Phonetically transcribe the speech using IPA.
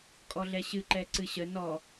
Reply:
kʼɔɮɛɕɨ ǃɛǀɨɕə nɔ

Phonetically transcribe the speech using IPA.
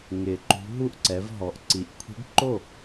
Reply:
ŋɪ˨˩ǃṳ˧˥ ɦu˥˩ʔǀɛ˩˧vɦɔ˩˥ʔǀi˩˥ʔ kʷʰi̤˧˥ɖǃo˥˩

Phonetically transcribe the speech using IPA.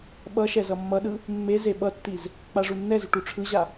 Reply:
ɓʌʃɛz ʌmːʌɗɯ | mːe zeɓʌtːiz | k͡paʐunːɛzuʈ uʈ͡ʂʰɯʑa

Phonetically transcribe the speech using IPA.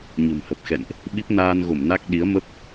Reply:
ɲə̤˨˩mhə˨˩p̚ xɛ̰˧˨nʔ | ɓi˦˥p̚naː˧nɣo˧˩mna˦˥k̚ ɗi˨˦ə̯mə˦˥p̚

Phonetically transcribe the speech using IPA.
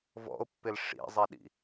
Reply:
vɔ̰o̯pːɪl ʂḭzˤiɗḭ

